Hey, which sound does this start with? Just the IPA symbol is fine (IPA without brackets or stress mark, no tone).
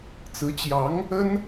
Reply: t͡s